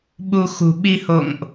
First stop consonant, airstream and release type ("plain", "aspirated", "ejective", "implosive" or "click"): implosive